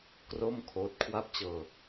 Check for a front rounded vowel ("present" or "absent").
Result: absent